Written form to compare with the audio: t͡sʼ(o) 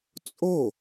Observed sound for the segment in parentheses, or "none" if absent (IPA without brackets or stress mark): o